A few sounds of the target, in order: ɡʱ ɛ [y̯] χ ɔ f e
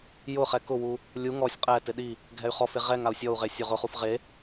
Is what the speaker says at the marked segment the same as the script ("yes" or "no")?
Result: yes